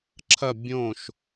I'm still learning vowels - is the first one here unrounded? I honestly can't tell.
yes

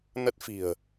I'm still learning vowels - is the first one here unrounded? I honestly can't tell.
yes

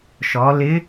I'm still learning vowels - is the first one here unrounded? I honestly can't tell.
no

